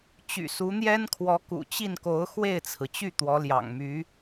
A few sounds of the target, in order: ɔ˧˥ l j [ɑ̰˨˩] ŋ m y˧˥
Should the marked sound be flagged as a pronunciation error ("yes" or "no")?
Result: no